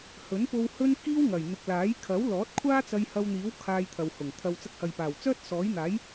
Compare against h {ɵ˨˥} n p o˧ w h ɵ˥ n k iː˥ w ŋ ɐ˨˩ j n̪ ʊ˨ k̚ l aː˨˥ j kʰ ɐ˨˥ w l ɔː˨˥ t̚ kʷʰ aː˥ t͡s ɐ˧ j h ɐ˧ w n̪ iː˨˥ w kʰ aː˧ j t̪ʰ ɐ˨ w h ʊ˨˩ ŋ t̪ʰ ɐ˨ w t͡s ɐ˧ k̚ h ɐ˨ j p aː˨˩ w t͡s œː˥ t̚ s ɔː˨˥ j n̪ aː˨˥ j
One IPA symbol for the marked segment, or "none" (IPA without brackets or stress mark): ɵ˨˥